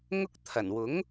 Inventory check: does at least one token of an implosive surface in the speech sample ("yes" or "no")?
no